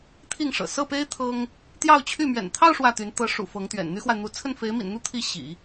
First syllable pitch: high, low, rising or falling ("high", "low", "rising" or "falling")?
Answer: falling